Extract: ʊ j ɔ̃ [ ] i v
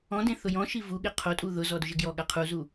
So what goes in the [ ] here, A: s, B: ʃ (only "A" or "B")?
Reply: B